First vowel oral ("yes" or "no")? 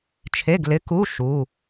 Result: yes